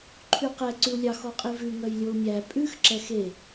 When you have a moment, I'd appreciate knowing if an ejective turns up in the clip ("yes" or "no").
yes